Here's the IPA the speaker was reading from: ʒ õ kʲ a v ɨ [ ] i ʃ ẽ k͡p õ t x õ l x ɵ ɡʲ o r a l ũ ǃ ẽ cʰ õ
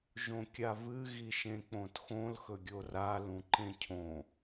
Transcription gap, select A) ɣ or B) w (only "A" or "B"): A